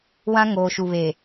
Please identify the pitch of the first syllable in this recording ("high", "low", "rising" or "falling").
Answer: high